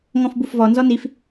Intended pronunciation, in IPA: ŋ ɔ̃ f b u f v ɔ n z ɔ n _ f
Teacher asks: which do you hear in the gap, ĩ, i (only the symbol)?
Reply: i